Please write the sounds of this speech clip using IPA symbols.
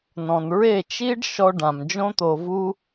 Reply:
n ɔ̃˨ n ɹ e˦˨ t͡ʃ i˦ ɖ ʃ ɔ˧ ɖ ã˨ m d͡ʒ õ˦ t̪ o˧ v u˦

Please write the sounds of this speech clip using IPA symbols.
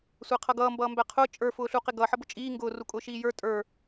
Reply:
sʷ æ qʰ ʌ ɡ ʌː m b ʌː m b æ qʰ ʊː t͡ʃʼ ə˞ f ʊː ɬ u q ɪ ɡ ʌ ħ ʌ b ʊ t͡ʃʼ iː ŋ ɡ ʊː r u kʼ ʊː ʃ iː j ə˞ tʼ ə˞

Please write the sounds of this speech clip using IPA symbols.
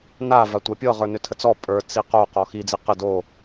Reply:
n a v a tʷ a pʲ ɤ ʁ ə˞ n ʏ tʰ ə t͡s ɔ pʼ ə˞ t͡s i q o q ɔ x i d͡z i q ə d o

